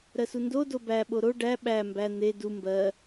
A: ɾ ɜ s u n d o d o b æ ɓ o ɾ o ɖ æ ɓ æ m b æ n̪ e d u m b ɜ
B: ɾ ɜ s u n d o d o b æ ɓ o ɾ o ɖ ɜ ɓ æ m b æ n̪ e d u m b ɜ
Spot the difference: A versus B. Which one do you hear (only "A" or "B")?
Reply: A